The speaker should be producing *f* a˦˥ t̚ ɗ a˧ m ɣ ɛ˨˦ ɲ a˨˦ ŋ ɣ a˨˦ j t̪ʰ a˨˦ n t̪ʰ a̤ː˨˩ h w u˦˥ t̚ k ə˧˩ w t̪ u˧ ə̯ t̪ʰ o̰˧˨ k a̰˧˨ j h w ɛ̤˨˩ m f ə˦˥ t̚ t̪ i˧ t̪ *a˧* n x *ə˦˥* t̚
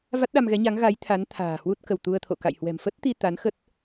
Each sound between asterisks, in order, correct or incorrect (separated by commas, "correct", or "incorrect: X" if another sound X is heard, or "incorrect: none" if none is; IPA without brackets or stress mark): incorrect: v, incorrect: a˨˦, correct